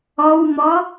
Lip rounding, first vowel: rounded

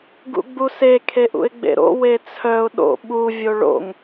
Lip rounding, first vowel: rounded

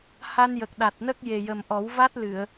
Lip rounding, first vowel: unrounded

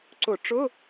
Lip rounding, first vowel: rounded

